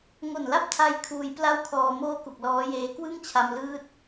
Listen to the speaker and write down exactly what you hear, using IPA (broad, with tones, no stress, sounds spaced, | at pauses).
ŋ o˨˩ n l a˥˩ p̚ tʰ a˦˥ j kʰ uː˧ j p l a˥˩ w kʰ ɔː˧ m oː˥˩ k u˨˩ k̚ l ɔː˦˥ j eː˦˥ k w ɯ˥˩ ŋ t͡ɕʰ a˧ m l ɯː˦˥ t̚